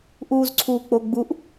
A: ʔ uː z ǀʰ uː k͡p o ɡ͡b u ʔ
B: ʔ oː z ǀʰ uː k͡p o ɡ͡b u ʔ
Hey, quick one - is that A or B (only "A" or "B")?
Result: A